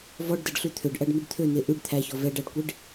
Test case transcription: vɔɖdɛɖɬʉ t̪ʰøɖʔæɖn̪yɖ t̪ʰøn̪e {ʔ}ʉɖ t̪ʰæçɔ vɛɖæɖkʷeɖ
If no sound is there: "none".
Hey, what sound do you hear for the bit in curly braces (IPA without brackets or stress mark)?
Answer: ʔ